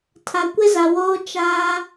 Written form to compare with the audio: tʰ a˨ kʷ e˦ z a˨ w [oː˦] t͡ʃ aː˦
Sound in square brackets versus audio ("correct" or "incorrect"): correct